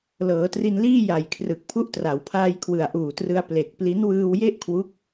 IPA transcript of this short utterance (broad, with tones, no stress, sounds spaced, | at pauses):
l ɤː˩˦ t r i˧ n l iː˥˩ j a˨˩ j kʰ r ɯ˨˩ k̚ pʰ u˦˥ ʔ t r a˩˦ w pʰ aː˧ j kʰ w ɯ˨˩ a̯ ʔ uː˨˩ t r ɯ˧ a̯ p l e˨˩ k̚ p l i˦˥ n w ɯː˧ w j e˥˩ ʔ kʰ w u˦˥ k̚